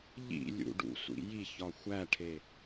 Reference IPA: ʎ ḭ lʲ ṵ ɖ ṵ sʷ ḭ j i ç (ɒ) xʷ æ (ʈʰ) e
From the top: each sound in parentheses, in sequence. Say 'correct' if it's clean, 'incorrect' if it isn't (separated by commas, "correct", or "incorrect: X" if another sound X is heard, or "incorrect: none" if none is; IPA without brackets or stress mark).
correct, correct